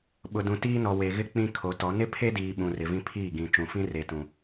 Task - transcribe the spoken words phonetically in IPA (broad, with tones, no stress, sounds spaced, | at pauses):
ɓ ʊ˨ d ũ˨ t iː˦ n ɔ˨ w e˨ ɣ ɪ˦ k͡p ĩ˦ kʰ o˨˦ t ɔ˨˦ n ɪ˦ pʰ e˦ d iː˨ ɓ ũ˨ r ɪ˨ v ĩ˦ pʰ iː˦˨ ɡ ĩ˨ t͡ʃ ũ˨ f ĩ˦ r e˨ t ũ˨